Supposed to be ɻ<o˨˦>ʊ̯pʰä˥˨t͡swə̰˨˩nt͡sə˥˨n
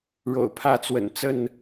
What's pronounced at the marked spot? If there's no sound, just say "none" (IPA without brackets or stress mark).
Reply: o̰˨˩